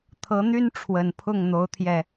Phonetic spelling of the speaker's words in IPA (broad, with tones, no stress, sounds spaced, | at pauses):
t̪ʰ ɤ˨˦ n̪ y˦ n ʈ͡ʂʰ w ə˨˩ n pʰ ʊ˥˨ ŋ n̪ o˨˦ ʊ̯ t̪ʰ j ɛ˨˩